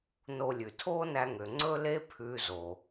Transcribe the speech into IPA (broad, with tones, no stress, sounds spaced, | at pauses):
n o˧ lʲ ʉ˩ tʰ oː˥ n æ˧ ŋ ø˩ ŋ͡ǀ ɵ˥ l e˥ pʰ ʉː˥ z o˩